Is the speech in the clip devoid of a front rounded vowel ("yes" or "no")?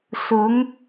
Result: yes